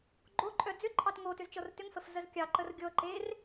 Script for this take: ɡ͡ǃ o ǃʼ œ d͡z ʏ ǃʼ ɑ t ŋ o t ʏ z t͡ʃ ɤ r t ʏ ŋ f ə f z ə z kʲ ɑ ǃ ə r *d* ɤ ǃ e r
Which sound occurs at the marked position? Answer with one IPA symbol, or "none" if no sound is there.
ɡʲ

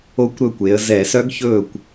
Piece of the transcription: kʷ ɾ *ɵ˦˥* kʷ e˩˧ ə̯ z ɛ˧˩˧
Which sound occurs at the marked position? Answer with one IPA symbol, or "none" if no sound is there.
ɵ˥˩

